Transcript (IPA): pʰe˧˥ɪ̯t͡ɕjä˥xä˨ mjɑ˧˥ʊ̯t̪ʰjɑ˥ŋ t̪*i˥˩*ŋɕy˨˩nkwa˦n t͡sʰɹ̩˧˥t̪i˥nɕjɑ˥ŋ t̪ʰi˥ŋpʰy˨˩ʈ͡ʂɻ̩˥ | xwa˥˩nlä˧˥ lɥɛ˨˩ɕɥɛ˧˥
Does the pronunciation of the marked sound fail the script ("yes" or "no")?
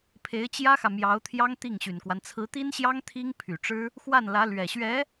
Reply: no